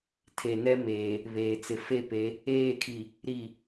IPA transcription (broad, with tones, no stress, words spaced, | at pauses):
tʰe˨nɛ˦meː˨ | βeː˨t͡sɪ˨ fe˦˨pe˨˦ | eː˦˨kʰi˨ | ɾi˨